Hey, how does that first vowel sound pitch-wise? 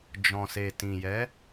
low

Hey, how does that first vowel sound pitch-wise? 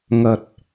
low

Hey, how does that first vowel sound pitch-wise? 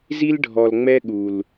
high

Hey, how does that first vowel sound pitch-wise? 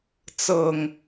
low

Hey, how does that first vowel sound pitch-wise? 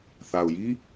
low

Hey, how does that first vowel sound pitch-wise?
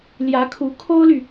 rising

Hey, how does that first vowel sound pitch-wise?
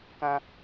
high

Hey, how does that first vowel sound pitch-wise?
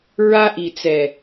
high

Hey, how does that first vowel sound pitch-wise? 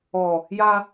low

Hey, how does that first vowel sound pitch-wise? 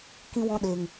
high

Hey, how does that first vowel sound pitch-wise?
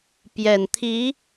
low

